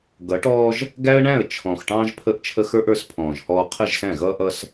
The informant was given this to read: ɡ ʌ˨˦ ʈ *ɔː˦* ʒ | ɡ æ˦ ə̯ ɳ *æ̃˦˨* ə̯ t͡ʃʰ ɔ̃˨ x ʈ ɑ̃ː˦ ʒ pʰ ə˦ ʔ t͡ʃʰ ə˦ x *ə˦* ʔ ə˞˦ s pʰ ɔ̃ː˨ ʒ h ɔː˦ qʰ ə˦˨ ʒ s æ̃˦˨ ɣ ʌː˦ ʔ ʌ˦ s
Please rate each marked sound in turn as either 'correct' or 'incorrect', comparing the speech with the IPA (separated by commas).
correct, correct, incorrect